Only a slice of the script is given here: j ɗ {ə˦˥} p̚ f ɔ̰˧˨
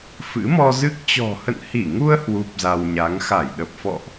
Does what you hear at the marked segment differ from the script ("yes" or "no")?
yes